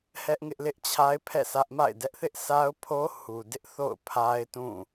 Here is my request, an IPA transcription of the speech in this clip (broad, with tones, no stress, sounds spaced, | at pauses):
h ɛ˦ ʔ ŋ ɪ˦ ʔ l ɪ˦ ʔ t͡ɕʰ a˦ ɪ̯ pʰ ɛ̰˦˨ s ä˦ ʔ m a̰˦˨ ɪ̯ d ɛ˦ ʔ θ ɪ˦ ʔ sʰ a˦ ʊ̯ pʰ o˦ h u˨ d ɪ˦ ʔ θ o̰˦˨ ʊ̯ pʰ a˦ ɪ̯ t ũ˦˨